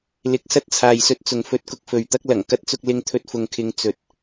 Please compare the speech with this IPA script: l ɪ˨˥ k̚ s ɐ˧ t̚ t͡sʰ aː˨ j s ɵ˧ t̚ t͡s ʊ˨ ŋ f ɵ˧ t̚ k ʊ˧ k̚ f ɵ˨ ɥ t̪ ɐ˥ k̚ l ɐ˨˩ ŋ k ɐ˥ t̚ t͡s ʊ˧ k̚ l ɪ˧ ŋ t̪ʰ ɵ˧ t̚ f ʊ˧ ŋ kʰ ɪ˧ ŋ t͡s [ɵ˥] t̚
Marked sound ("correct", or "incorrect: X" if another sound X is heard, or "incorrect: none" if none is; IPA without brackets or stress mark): incorrect: ɵ˨